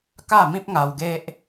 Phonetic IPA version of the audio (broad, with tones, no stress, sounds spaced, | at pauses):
k a˥˧ m ĩ˦ p̚ ŋ a˧ w ɡ e˦ ʔ